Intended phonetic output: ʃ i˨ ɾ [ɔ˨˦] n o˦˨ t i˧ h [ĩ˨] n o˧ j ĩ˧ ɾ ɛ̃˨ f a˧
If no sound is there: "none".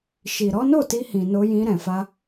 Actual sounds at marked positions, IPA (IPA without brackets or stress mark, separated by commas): ɔ˨˦, ĩ˨